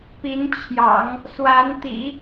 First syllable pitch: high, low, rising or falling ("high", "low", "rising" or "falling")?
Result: rising